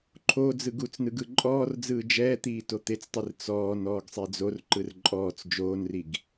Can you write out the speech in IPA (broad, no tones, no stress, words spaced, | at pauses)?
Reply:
ǃʰo d͡zɯɡut͡snɯɡ ɯǃʼɔːrd͡zɯː d͡ʒɛːt̪iː tot̪et͡stˤir t͡sɔːn ɔːɡsˤed͡zorǃɯr ǃʼɔːt͡s d͡ʒoːnriɡ